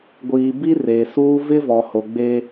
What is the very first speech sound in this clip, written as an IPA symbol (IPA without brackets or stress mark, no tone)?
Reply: ɡʷ